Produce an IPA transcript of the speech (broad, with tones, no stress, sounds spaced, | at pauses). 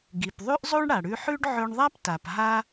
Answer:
ɡ i˩ p ðˤ ʉ˥ ʔ zˤ o˥ ɳ ɽ a˩ ɽ ʉ˧ ħ ʉ˥ ɖ ʕ ɵ˧ ɳ ðˤ a˥ p t a˩ p ɦ a˥